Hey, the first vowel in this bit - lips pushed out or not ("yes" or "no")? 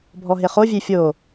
yes